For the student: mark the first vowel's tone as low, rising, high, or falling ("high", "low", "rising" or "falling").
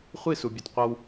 falling